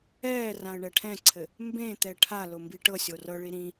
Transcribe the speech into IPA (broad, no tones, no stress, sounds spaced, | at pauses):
ɛː r ã ə̯ ɳ ɛ ʈʰ ɛ̃ ǀʰ ɘ | m b ẽ t̪ ɛ ʈʰ a l ʊ m b i ʈ ɤ sʲ o r ɤ ɭ i ɾ ĩ